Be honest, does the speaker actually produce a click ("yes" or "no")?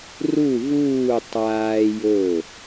no